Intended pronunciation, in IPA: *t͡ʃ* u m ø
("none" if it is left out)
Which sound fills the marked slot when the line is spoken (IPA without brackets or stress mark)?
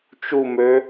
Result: t͡ʃ